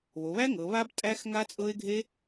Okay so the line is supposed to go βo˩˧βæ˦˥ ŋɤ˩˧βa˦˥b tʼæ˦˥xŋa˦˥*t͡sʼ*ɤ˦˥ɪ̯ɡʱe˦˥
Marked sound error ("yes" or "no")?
no